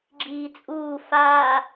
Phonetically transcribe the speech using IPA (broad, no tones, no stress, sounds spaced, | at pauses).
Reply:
ɡ͡ǁ iː t͡sʼ uː f aː